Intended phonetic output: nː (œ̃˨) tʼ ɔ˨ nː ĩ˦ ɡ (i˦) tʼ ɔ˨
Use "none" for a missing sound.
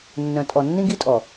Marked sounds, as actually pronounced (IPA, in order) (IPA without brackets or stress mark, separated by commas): œ̃˨, i˦